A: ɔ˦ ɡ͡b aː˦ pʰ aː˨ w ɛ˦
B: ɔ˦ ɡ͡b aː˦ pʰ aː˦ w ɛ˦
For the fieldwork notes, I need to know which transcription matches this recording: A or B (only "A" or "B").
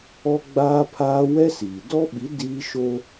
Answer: B